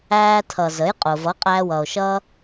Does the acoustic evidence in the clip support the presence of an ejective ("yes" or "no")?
yes